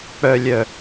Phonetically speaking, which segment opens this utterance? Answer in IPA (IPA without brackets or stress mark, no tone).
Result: k͡p